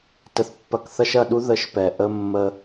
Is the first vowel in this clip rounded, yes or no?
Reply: no